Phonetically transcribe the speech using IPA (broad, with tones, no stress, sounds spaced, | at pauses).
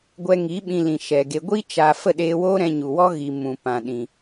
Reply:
ɡʷ ɛ˧ ŋ i˨˦ ɓ ĩ˧ l ĩ˨ ʃ ɛ˨ ɡ e˧ ɡʷ i˦ t͡ʃ a˧ f ə˦˨ ɗ eː˧ w oː˦ ɾ ɛ̃˧ ɲ u˨ w ɔ˦ ɣ i˨ m ũ˨ p ã˨ ɗ ĩ˨